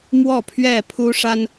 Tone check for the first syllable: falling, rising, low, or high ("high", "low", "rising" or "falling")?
falling